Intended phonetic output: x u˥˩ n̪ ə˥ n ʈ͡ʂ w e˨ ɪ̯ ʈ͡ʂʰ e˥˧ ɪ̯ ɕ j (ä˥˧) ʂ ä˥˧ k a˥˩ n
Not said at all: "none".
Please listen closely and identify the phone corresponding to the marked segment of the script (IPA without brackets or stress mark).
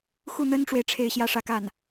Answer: ä˥˧